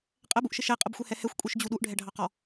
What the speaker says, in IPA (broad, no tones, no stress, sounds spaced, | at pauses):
qʼ ɛ b u ʔ ʃ ɪ ʃ ɛ qʼ ə b xʷ ɛ h ɛ h ɛ xʷ kʷʼ i ʃ d͡ʑ u ɗ u ʔ ɖʱ ɛ ɖʱ ɑ q ɔ